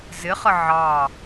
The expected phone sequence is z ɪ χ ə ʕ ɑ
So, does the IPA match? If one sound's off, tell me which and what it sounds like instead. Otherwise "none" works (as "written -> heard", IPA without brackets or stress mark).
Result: none